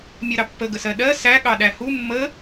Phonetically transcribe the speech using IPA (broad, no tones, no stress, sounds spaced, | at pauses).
mʲ ɜ ɾ ɑ pː ə ɡ ə s ɜ ɗ ɜ s æ ɠ ɑ ɗ æ h u mː ə